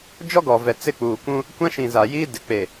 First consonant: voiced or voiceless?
voiced